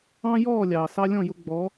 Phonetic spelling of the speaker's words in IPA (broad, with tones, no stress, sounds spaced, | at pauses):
ɑ̃˦ j ɔː˦˨ lʲ ɑː˨ s ɑ˦ lʲ ɔ̃˦˨ j ʊ˧ ɡ͡b ɔ˨˦